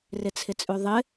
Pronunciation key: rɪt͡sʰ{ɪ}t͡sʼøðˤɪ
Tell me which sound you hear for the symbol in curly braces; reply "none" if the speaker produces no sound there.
ɪ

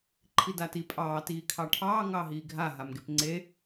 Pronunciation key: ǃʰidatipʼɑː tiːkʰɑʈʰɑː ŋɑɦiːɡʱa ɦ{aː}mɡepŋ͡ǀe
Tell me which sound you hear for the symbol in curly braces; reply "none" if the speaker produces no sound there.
a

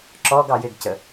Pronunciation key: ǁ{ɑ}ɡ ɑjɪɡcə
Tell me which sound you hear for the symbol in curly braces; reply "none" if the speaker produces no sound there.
ɔ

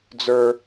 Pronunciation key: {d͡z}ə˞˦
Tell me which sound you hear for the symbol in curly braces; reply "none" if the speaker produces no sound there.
d͡z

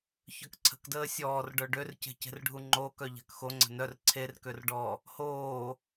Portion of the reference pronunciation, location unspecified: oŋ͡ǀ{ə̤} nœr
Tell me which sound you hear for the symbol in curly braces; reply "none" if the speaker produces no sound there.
ə̤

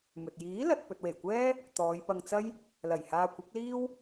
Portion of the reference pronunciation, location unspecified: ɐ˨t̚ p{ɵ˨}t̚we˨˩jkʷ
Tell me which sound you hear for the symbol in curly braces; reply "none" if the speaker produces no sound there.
ɵ˨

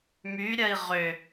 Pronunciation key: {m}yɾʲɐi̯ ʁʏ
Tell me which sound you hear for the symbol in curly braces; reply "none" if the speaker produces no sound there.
m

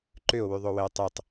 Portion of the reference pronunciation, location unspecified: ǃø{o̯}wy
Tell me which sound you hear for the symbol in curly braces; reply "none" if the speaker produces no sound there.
o̯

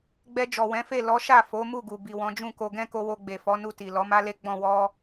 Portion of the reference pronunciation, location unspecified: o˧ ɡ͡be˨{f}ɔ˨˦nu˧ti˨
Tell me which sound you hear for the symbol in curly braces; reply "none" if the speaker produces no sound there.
f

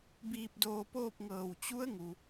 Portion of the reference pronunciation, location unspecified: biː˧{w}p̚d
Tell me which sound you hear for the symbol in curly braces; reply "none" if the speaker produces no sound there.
none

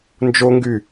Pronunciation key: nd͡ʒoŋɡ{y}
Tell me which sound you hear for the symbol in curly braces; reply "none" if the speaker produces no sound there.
y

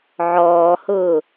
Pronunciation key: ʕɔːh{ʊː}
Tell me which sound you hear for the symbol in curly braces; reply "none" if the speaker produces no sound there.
ʊː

